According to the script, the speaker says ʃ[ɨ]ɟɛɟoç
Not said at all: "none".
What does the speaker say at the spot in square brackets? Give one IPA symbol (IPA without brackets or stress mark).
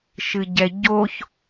ɨ